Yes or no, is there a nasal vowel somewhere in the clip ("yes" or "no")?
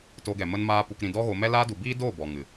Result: yes